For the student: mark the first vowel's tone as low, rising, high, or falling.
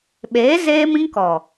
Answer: rising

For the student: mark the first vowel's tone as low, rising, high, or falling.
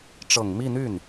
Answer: low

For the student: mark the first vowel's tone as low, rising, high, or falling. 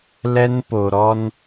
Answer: high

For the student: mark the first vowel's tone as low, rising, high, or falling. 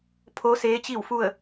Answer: rising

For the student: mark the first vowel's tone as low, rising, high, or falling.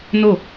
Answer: falling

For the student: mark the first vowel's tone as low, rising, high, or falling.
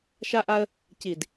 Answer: high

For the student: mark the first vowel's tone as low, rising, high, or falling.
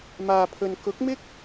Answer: low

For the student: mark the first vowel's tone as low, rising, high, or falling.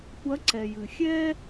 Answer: rising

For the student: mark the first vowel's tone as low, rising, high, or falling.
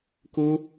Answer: high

